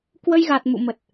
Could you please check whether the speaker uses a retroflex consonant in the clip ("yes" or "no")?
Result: no